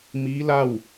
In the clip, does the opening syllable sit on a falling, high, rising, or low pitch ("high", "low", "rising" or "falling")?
rising